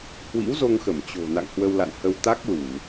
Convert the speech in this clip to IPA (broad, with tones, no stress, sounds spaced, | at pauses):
h w ḭ˧˥ w z o˧ ŋ x ə˧˩ m t͡ɕ o̤˨˩ n a̰˧˨ ŋ h w ə˧ w l a̰˧˨ n h ə˧ w t̪ a˦˥ k̚ l u˧˩˨